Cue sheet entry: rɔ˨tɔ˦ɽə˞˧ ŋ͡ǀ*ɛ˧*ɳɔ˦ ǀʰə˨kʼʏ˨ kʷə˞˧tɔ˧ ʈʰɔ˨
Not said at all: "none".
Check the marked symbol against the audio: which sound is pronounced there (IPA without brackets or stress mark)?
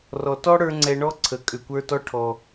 ɛ˧